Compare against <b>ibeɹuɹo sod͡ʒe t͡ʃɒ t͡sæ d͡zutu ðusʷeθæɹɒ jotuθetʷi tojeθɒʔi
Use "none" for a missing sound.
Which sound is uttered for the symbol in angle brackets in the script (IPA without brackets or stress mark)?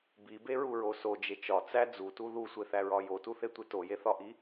b